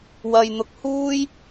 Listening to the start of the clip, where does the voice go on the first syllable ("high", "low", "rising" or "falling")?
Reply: low